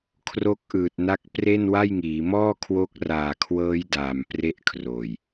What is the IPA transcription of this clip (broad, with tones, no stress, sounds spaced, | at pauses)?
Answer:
kʰ r o˦˥ k̚ ʔ ɯː˨˩ t̚ n a˦˥ k̚ p r e˥˩ n w a˥˩ j ŋ iː˩˦ m ɔː˥˩ kʰ w o˦˥ k̚ r aː˨˩ kʰ w ɤː˦˥ j d aː˨˩ m p r e˥˩ ʔ kʰ r oː˨˩ j